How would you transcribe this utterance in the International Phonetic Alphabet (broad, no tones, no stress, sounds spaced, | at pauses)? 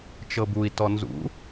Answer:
t͡ʃ ɤ b u i̯ t ɔ n z ṵ